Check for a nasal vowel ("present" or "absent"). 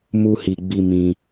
present